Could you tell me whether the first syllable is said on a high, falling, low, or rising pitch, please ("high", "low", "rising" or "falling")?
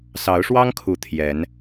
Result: rising